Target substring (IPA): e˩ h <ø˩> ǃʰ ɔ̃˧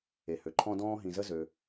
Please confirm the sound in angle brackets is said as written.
yes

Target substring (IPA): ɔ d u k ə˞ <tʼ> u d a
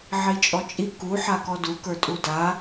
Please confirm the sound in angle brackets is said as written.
yes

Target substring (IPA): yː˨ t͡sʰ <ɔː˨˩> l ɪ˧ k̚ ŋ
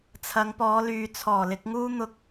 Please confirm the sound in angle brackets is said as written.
yes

